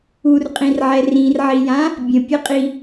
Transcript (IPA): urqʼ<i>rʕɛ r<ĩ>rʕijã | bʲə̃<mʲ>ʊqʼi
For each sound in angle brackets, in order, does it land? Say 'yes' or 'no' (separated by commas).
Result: no, yes, no